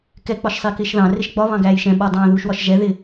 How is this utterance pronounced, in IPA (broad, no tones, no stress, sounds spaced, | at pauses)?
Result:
k ɛ k͡p ɒ ʃ sˤ ɪː k ɪː ʃ ð ɑ̃ r ɪ ʃ ɡ͡b ɒ β ɑ̃ ɡ æː j ʃ ɛ̃ ɓ ɒ dˤ ɑ̃ː ð uː ʃ w ɒ ʃ ʒ ɛ ð ɪ